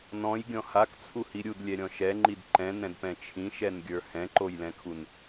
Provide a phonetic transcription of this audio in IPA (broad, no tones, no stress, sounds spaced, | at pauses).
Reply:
n ɔ̃ j ɡʲ ɔ̃ h a k t͡sʰ u h i ɾʲ u d lʲ ɛ ɾʲ ɔ̃ ʃ ɛ ŋ͡ǃ i d ǃ ɛ̃ n ɛ̃ d p ɛ̃ t͡ʃʰ ĩ ʃ ɛ n ɡʲ ə˞ h ɛ̃ ǃ o j l ɛ̃ kʰ u n